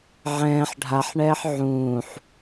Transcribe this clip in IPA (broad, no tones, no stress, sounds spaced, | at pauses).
ʕ ɛ̃ː ħ ɖʱ a ħ ɳ ɛː ħ ʕ ũː ħ